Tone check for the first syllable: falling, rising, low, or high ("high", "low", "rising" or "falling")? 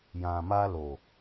low